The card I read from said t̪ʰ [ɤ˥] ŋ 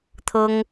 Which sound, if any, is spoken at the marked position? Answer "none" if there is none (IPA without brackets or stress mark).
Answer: ɤ˥